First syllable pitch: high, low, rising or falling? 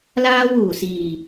high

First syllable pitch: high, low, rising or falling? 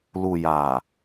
low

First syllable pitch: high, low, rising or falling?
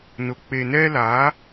low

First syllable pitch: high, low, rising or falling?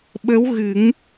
rising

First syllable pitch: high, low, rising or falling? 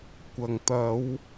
low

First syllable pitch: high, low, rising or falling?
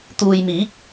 low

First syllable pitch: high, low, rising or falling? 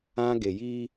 high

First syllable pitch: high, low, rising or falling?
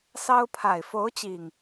high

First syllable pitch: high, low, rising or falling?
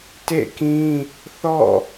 falling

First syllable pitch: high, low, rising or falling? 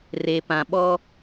low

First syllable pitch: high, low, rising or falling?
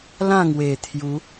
falling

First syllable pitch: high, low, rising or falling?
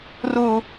high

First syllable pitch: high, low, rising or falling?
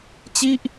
falling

